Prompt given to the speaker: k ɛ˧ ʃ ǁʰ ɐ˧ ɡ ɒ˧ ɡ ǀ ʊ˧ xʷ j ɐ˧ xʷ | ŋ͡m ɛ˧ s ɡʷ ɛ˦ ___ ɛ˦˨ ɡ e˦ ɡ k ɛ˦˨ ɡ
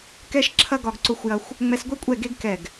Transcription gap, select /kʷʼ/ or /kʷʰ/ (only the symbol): kʷʼ